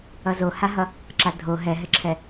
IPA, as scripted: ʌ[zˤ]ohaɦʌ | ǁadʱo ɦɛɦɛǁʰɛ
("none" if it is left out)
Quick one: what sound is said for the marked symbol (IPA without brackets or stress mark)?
z